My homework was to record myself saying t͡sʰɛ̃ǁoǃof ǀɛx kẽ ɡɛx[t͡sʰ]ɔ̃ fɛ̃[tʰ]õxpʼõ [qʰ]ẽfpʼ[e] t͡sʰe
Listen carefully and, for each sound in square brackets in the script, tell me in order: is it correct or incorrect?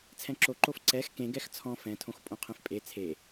correct, correct, correct, correct

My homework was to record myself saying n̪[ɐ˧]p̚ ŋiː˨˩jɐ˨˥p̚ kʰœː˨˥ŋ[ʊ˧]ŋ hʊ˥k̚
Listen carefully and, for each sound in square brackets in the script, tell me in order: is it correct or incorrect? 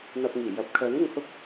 correct, correct

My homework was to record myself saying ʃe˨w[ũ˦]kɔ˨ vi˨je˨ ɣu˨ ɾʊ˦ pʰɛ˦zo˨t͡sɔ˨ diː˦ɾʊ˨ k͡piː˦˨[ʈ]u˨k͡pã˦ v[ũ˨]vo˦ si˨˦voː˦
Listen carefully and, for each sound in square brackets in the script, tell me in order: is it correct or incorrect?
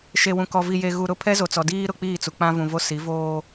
incorrect, incorrect, correct

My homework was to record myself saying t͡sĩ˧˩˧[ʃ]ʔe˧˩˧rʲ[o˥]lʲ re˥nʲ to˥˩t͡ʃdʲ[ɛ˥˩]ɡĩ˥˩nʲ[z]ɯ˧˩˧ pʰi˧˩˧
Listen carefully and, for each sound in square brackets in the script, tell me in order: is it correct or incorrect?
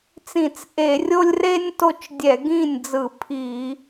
incorrect, correct, incorrect, incorrect

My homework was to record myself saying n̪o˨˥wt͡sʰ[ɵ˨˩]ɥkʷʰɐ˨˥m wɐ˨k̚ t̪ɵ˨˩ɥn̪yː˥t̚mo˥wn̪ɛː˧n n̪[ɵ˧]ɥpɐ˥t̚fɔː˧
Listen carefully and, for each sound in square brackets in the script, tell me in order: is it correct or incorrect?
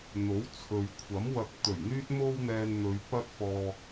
incorrect, incorrect

